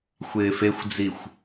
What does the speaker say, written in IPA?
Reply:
xʷɪːfexʷd͡zixʷ

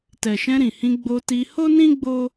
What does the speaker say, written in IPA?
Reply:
tɛ˨ʃɛ̃˧ɾĩ˨hĩ˧ ɡ͡bo˧ti˧ ho˦nĩ˦ ɡ͡bo˦

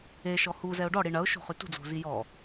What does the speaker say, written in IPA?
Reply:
eʃɔ huzɛʊ̯ ɖɔɽi ɳɐʊ̯ʃo̤χy tṳd͡zo̤zi jɔ

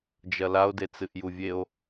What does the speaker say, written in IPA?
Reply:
d͡ʒɐlao̯de t͡sɨʔjuvʲeo̯

